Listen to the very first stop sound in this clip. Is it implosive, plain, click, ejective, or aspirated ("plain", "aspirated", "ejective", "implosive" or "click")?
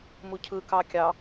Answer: aspirated